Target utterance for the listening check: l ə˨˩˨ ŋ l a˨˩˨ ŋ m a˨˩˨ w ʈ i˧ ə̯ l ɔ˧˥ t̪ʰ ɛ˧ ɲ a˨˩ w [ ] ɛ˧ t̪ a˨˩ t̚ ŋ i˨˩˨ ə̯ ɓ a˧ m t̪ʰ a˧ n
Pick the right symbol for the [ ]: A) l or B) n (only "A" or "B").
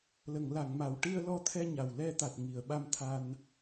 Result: A